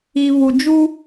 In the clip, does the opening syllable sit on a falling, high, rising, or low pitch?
low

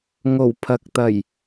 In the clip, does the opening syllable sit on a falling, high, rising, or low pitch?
low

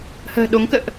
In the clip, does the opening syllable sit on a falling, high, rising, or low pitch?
low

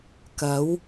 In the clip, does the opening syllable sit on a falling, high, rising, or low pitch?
rising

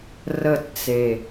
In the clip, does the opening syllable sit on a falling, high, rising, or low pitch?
falling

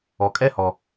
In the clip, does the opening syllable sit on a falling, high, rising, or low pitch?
low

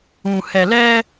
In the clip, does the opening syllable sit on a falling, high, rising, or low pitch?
low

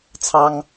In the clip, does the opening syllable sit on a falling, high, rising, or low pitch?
high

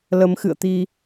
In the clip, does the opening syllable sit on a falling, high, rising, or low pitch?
rising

